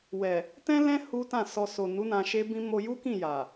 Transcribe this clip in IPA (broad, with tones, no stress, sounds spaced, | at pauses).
w ɛ˨ | t ɛ̃˦ l ɛ̃˦ h u˦ t ã˦˨ s ɔ˧ s o˨ n u˨˦ n ã˧ ʃ e˦ b ĩ˦ m o˧ j u˦ k ĩ˦˨ j a˨